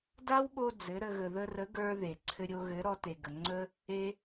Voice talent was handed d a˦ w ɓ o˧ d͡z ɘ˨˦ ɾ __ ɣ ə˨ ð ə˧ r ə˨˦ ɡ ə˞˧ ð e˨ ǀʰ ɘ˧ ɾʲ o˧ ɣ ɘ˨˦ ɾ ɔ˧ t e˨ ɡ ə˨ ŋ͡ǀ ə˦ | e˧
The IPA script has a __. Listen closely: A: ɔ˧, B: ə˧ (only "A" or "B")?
B